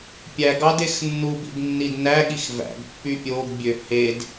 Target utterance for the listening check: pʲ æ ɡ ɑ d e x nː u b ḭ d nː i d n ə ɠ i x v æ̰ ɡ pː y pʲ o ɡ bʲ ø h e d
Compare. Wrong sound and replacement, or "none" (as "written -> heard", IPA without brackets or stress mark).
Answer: ə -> æ